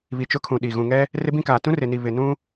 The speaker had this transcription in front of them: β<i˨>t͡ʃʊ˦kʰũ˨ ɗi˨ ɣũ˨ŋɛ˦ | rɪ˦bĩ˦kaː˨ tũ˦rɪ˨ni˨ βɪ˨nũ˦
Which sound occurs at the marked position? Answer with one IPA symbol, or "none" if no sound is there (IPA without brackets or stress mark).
i˨